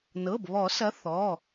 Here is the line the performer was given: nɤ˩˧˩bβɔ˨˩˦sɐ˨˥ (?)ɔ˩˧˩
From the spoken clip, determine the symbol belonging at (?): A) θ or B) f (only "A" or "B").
A